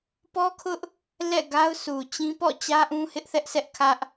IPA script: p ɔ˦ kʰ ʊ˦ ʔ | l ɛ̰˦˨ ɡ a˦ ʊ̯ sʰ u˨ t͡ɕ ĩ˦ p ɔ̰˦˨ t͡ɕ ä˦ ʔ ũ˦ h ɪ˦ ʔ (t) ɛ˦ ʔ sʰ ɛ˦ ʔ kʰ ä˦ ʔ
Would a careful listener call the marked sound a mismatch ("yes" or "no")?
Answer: yes